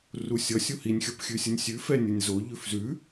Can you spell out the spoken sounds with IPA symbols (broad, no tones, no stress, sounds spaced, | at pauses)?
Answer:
r u sʲ ʌ sʲ u h i nʲ xʲ ʌ p xʲ ʉ sʲ ə nʲ sʲ ʉ f ɛ nʲ ə nʲ z o ʎ ʉ f z ʉ